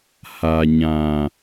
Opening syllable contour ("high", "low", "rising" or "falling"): low